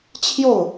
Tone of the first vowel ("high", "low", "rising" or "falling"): falling